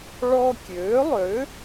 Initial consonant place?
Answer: retroflex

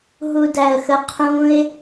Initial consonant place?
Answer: glottal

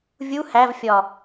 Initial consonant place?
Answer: labial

